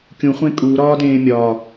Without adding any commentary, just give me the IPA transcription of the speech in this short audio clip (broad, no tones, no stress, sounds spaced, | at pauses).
kʲ ũ χʷ ẽ kʼ uː ɾ ɒː d ẽː mʲ ɒː